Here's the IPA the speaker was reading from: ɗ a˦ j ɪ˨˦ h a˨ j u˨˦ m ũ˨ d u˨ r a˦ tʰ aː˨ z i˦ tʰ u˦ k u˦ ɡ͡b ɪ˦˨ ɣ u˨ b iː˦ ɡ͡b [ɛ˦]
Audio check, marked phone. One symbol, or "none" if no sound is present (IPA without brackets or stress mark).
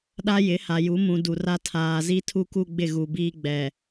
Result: ɛ˨